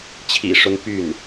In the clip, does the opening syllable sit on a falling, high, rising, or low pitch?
low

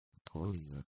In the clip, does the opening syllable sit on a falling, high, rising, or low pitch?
rising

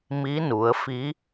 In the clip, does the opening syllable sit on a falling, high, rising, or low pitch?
rising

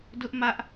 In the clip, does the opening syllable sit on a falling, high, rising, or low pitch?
high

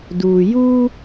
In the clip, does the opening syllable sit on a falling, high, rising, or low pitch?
low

